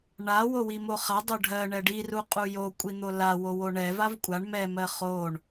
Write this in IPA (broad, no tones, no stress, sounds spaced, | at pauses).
ɳ a w o w i m o χ a dˤ o ɖʱ ɜ ɳ ɛ ɖ i r u qʼ u j o kʷʼ i n̪ o l a w o w o ɳ ɛ v a v kʷʼ a ɳ m ɛ m ɜ χ o ɳ